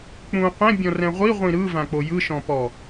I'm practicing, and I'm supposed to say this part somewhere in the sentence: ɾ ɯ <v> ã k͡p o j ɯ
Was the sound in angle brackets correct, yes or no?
yes